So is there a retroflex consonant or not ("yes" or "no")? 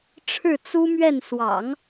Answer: yes